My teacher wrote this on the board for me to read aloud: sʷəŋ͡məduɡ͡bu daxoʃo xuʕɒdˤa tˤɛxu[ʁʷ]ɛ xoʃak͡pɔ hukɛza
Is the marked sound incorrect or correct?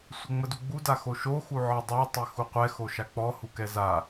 incorrect